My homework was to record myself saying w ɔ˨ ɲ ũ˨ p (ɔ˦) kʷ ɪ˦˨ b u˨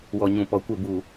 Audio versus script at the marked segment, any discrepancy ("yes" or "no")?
yes